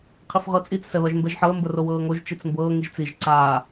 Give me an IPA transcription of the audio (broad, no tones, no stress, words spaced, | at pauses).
qʰifʁɤt͡sʼit͡s sɛβɜʒmbɛʒħɤə̯ mbərowɤːŋoʒ t͡ʃit͡smbɤː ŋiʒt͡siʒ ǀaː